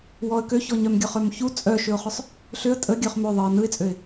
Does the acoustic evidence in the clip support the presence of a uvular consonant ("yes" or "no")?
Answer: yes